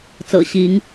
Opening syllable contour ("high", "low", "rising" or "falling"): low